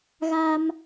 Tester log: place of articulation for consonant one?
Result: velar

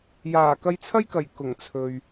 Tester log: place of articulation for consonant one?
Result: palatal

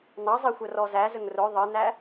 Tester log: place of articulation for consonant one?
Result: alveolar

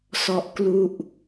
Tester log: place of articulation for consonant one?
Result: alveolar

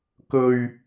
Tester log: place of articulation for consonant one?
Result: velar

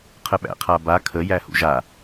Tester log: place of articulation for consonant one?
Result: uvular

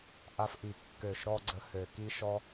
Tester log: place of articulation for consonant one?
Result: glottal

